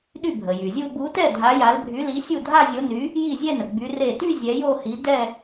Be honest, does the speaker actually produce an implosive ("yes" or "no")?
yes